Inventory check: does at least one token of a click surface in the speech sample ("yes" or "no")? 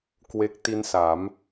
no